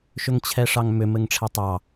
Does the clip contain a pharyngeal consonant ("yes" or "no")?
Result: no